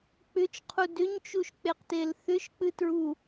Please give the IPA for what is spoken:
k͡pʏt͡ʃqʰu dʏɲt͡ʃuʃk͡peqtel θʏʃk͡pɨtɹu

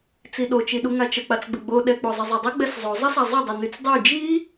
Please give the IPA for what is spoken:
t͡siɗot͡ʃiɗu ŋat͡ʃək͡pat͡sɡ͡bə ɡ͡boɗɛ k͡pozˤɪzˤɛdˤɪ ɡ͡bɛszˤozˤəsa zˤədˤɪnyt͡s dˤy d͡ʒi

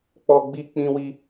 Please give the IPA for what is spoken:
k͡pɔ˧ɡ͡bi˧ k͡pĩ˧wi˧

